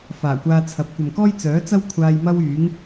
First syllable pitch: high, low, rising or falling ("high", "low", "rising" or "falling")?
low